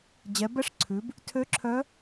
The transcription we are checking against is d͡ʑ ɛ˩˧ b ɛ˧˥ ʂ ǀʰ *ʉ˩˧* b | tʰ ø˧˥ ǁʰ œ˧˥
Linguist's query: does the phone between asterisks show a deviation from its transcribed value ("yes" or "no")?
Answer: no